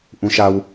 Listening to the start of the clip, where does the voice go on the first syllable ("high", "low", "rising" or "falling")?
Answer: low